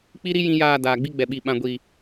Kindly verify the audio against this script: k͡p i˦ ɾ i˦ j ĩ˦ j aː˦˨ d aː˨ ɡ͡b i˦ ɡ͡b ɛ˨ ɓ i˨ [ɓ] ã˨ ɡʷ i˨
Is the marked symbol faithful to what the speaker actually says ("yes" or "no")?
yes